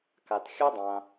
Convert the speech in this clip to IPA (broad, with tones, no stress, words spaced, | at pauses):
ka˧t xʲa˦dˤã˧